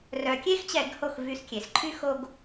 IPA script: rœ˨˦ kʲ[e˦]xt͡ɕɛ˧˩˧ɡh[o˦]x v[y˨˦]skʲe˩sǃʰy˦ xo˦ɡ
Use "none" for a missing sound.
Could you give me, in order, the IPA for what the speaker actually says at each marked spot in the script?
e˦, o˧˩, y˨˦

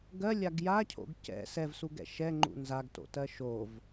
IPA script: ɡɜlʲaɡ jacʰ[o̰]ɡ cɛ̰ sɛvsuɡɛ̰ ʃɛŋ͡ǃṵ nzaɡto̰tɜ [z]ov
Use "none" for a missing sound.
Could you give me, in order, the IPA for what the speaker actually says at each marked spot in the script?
o̰, ʃ

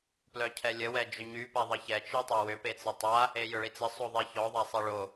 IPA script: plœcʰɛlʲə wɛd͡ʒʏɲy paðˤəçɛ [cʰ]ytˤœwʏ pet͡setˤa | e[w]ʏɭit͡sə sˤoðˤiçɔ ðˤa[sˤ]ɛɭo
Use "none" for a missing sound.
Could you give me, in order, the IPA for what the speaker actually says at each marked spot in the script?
t͡ʃ, j, sˤ

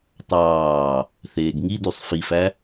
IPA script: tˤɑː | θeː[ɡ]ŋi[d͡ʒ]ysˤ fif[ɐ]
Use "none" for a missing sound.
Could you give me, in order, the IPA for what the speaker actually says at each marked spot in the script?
ɡ, d, æ

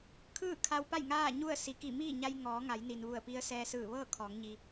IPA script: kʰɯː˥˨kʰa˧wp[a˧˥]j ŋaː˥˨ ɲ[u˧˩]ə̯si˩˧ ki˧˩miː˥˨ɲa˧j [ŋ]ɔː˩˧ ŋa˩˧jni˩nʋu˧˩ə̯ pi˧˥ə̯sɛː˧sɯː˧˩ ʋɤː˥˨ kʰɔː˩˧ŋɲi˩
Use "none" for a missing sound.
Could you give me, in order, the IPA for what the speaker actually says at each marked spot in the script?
a˥˨, u˥˨, ŋ

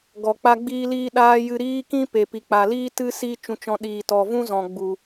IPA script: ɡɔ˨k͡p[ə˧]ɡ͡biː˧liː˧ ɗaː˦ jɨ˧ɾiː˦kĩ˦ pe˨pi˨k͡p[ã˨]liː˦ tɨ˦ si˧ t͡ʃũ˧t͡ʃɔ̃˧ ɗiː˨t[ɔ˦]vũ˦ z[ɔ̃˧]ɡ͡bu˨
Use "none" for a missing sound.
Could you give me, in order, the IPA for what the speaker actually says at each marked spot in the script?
a˧, a˨, ɔ˨, ɔ̃˨

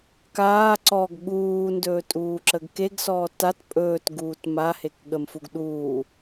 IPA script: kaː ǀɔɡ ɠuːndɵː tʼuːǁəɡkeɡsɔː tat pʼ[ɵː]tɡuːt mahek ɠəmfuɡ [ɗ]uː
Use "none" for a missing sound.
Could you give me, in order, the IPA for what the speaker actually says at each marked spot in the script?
ɵː, ɗ

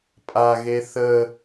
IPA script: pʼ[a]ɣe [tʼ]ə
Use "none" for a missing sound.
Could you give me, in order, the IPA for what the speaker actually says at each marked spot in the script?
a, θ

